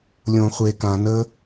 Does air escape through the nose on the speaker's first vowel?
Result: yes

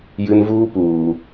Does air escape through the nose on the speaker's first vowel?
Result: no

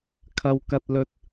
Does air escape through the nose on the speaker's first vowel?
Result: no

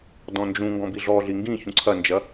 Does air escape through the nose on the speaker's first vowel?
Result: yes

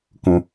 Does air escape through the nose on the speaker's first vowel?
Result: yes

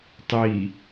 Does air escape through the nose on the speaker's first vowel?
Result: no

